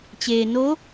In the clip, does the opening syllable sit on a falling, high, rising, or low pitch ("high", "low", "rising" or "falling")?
low